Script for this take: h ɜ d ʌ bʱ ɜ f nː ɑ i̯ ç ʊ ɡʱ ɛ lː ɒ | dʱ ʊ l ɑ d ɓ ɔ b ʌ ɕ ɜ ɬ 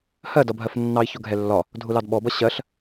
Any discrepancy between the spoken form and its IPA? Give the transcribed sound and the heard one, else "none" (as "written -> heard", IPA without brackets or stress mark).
none